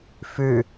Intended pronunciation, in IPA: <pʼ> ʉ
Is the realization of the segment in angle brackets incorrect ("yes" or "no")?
yes